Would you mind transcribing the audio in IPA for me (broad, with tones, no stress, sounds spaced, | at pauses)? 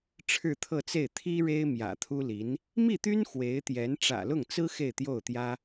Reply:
ʈ͡ʂʰ ɻ̩˥˧ t̪ʰ ɤ˥˧ t͡s e˥˩ ɪ̯ t̪ʰ i˥ ɻ e˥ ɪ̯ m j ä̰˨˩ t̪ʰ u˥ l i˧˥ n | m i˥˩ t̪ y˥ n x w e˧˥ ɪ̯ t̪ j ɛ˧˥ n ʈ͡ʂ ä̰˨˩ l ʊ˥˩ ŋ t͡s ɹ̩˥ x e˥˧ ɪ̯ t̪ j o˥˩ ʊ̯ t̪ j ä˥